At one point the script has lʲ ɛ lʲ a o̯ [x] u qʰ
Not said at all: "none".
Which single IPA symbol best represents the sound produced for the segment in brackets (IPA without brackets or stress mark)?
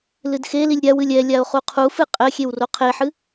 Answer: χ